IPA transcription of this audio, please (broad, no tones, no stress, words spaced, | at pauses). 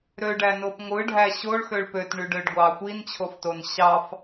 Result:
ɾøɖænop ŋʷɯɖʱæ ɕoɭxøɭ pøtɳyɖøɖɡʷɑ xʷint͡ɕʰofton ɕɑf